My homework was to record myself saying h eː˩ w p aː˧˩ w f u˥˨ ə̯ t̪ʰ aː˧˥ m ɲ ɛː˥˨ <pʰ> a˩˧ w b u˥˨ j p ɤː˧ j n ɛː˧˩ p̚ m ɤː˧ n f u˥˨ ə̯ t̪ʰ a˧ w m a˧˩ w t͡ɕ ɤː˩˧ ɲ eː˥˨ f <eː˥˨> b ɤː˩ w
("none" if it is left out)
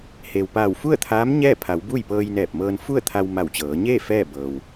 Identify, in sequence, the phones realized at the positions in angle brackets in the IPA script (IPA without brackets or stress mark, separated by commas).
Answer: pʰ, ɛː˥˨